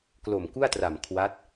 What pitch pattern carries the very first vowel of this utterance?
low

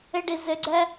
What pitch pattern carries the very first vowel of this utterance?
high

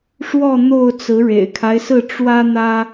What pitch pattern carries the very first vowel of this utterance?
falling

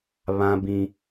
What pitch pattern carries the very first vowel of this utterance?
high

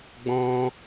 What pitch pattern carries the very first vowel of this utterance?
high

